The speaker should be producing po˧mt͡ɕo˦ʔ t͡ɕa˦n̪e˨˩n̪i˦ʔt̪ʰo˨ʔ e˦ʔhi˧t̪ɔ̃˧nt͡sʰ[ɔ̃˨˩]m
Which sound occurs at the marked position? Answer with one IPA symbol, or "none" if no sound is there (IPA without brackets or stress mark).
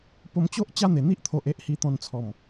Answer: ɔ˨˩